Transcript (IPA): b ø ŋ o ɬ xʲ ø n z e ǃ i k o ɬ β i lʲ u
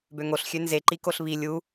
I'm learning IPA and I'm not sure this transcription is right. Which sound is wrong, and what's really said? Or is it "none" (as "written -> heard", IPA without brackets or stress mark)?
none